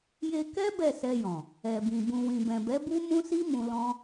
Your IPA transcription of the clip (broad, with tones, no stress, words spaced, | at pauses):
je˧ kɛ˦ bɛ˦˨sɛ˧jɔ̃˨ | ɛ˨bĩ˨ bũ˨wĩ˨bɛ̃˨bɛ˨˦ bu˦mũ˦si˦ mũ˧ lɔ̃˦